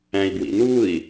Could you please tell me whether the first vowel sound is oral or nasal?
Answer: nasal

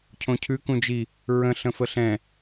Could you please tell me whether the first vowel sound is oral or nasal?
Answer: nasal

